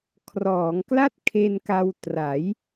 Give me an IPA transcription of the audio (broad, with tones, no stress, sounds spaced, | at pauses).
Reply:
kʰ r ɔː˩˦ ŋ k l a˥˩ t̚ kʰ e˧ n k a˧ w t r a˩˦ j